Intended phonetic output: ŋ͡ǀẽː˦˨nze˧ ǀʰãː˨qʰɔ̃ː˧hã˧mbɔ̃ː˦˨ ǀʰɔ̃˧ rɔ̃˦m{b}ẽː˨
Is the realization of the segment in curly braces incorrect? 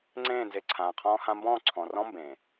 no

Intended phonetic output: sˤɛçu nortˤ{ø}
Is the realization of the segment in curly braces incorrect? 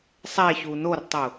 yes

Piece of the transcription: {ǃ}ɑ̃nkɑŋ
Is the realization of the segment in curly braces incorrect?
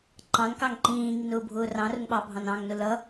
no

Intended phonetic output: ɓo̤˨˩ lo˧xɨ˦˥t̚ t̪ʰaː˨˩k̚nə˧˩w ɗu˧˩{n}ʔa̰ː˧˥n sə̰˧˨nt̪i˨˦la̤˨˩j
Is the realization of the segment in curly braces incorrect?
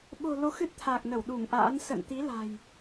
yes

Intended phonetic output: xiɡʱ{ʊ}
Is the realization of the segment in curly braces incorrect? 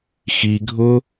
no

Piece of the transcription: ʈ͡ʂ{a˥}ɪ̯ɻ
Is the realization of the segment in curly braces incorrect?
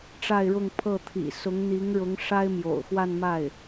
yes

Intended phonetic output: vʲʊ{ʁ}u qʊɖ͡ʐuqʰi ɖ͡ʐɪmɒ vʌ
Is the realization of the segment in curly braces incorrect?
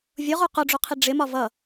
no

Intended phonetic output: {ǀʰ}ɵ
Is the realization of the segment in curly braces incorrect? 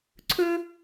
no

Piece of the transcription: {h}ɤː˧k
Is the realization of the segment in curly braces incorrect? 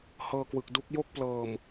no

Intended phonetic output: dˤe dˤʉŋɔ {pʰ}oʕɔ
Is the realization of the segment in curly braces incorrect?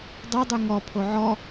no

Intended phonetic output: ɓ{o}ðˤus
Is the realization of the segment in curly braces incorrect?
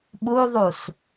yes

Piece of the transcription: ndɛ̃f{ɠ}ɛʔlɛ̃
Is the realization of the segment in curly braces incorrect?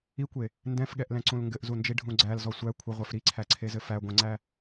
no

